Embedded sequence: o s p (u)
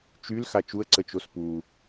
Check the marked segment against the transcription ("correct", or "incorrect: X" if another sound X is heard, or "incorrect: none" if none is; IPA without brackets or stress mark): correct